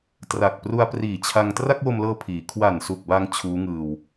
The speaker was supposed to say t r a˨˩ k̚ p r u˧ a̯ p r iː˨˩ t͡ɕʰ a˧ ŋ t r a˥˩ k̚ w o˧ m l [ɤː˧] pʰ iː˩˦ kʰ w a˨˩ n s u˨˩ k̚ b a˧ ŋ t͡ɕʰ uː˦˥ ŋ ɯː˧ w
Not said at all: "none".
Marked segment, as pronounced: ɤː˧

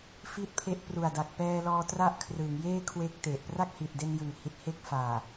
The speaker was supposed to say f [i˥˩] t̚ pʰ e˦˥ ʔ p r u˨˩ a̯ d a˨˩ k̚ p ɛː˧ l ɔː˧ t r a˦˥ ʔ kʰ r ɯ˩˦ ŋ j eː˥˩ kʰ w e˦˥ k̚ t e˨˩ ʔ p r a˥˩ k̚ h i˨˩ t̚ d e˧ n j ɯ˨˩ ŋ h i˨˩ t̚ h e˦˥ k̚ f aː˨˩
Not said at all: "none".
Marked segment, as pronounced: i˥˩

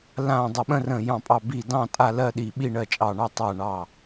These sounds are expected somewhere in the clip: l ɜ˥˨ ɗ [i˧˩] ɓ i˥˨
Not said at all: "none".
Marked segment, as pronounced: i˧˩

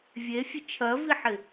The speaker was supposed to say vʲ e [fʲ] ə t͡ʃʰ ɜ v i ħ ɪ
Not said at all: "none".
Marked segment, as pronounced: fʲ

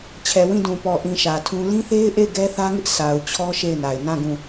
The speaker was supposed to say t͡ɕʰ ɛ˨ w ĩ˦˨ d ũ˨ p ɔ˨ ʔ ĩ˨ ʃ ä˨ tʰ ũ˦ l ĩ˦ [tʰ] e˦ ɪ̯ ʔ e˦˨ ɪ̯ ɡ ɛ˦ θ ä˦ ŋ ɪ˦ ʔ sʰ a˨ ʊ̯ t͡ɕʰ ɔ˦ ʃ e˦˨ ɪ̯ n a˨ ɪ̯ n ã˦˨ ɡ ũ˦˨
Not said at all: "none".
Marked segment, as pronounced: θ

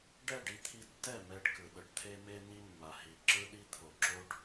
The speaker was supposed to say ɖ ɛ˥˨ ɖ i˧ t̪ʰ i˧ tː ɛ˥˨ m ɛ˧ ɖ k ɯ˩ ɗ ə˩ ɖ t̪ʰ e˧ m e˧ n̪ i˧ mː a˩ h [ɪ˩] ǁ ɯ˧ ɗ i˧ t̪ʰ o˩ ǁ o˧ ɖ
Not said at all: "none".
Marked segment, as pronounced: i˩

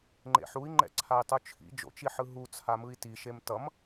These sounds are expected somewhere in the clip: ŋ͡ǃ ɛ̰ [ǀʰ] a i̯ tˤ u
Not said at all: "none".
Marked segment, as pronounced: ǀʰ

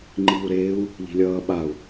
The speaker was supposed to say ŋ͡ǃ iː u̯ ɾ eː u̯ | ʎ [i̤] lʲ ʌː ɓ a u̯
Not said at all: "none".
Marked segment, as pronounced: i̤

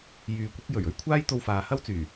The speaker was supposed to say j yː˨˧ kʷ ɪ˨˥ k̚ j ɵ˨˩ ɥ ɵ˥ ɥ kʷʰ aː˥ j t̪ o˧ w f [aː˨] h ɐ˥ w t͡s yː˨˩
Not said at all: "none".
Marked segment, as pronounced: aː˨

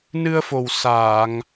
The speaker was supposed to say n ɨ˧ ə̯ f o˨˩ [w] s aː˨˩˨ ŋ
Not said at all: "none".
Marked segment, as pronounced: w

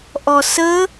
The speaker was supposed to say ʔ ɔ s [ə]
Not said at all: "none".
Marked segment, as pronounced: ə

